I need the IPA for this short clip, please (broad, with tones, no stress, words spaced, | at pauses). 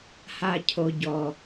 ha˩ cʰo˩ɟɔ˩